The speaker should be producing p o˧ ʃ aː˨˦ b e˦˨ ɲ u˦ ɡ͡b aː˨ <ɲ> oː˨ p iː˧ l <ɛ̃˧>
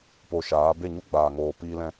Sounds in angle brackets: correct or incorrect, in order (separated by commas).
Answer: incorrect, correct